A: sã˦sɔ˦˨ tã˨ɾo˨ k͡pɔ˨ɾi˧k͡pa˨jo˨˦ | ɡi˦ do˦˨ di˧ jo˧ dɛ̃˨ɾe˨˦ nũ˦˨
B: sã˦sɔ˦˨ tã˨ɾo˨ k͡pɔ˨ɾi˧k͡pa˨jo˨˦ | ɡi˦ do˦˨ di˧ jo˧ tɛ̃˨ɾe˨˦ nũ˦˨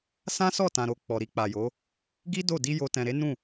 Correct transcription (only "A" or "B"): B